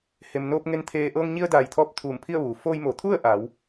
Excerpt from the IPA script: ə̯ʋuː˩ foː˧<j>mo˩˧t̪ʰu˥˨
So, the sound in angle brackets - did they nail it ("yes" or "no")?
yes